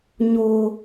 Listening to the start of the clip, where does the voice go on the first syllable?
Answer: high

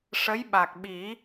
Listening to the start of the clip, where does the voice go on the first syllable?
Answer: rising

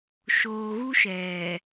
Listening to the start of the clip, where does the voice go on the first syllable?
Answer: low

